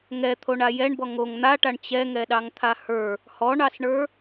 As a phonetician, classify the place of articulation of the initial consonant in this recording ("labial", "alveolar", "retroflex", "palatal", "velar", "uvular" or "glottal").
velar